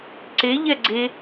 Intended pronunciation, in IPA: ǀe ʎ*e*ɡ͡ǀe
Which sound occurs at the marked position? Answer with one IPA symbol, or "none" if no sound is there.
ɛ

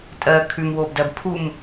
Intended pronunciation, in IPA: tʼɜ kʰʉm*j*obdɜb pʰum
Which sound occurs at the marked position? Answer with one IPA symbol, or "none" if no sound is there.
w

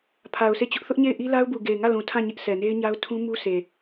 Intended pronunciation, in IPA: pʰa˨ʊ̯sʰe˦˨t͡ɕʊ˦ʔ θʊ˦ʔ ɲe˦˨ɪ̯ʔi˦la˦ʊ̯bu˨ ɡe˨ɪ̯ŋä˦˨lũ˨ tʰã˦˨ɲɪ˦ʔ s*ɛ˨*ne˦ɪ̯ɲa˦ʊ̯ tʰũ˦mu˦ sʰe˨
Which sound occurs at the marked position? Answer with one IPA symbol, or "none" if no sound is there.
ɛ˨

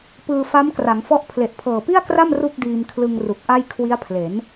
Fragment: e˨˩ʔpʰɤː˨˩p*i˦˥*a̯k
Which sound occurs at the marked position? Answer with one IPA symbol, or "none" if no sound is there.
i˥˩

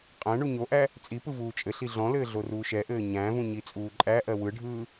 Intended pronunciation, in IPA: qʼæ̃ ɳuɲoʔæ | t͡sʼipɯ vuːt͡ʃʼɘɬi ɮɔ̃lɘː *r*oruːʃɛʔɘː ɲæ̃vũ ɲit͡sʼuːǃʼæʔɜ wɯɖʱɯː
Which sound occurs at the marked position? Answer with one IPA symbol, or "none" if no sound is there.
ɮ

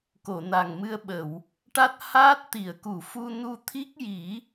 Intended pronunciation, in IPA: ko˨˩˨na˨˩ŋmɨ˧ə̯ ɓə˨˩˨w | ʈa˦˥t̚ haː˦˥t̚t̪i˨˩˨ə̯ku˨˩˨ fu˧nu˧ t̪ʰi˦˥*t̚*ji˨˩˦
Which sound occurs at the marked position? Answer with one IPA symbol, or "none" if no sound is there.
k̚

